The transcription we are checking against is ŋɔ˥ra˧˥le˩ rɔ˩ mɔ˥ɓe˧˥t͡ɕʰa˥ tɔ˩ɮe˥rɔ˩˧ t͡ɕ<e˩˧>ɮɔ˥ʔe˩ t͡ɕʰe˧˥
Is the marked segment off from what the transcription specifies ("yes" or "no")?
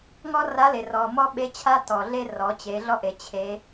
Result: no